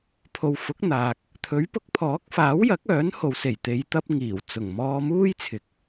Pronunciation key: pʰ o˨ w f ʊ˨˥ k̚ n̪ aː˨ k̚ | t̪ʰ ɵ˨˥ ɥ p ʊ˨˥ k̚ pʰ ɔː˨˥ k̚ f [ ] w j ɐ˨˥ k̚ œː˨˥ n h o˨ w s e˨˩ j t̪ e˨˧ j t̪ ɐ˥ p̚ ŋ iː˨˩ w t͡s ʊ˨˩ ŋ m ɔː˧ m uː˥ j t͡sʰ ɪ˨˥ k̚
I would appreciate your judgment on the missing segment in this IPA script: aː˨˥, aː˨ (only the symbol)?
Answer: aː˨˥